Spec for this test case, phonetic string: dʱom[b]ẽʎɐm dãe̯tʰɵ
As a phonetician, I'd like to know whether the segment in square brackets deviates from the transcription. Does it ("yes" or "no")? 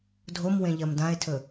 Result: yes